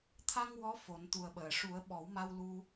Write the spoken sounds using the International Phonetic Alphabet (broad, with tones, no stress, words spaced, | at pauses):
t̪ʰa˧ŋ wɔ˧˥ fo˨˩˦nt̪u˨˩ə̯ɓəː˨˩˨ ʂu˨˩˦ə̯ ɓɔ˨˩˦wma˧wlu˧